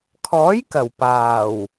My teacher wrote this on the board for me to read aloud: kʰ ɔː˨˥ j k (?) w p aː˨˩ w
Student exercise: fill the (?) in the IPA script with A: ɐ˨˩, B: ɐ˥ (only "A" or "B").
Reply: A